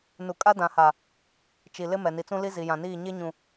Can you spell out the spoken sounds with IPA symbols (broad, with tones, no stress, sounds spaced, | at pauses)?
n u˨ kʼ a˦ d ã˨ h a˨ | t͡ʃ i˨ l ɪ˦ m ɛ˨ n i˨ t͡s ũ˦ l i˦ z i˨ j ã˨ n iː˦˨ ɲ e˦ ɲ ũ˨